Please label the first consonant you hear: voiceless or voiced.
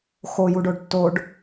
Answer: voiceless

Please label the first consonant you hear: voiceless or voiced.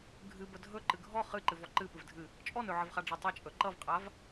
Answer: voiced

